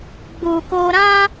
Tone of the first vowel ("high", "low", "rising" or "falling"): low